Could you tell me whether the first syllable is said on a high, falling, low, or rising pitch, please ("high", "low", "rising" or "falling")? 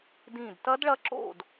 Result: falling